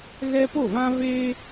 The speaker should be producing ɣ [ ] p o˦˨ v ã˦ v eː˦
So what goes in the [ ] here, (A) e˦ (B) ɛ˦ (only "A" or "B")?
B